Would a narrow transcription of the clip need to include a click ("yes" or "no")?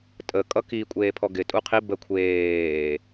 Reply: no